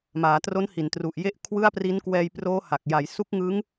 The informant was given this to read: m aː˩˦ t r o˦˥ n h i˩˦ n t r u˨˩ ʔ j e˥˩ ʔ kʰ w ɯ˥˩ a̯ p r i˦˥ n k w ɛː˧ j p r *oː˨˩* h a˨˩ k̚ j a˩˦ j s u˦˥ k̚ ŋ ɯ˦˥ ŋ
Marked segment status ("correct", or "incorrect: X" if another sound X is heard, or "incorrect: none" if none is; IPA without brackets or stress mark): incorrect: oː˦˥